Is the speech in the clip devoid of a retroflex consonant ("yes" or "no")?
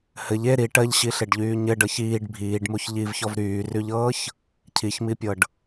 no